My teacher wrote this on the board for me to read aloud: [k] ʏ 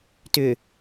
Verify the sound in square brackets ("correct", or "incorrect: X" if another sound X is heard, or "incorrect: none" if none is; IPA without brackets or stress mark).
incorrect: t